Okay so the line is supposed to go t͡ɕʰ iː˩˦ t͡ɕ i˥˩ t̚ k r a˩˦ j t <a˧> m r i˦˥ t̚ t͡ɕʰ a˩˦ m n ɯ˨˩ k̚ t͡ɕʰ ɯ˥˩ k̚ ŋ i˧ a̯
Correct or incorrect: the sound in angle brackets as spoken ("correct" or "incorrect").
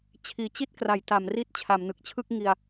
incorrect